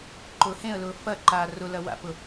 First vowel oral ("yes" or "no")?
yes